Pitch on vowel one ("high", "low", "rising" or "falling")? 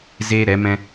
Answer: high